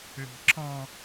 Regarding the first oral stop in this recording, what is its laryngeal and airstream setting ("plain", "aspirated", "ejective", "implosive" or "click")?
click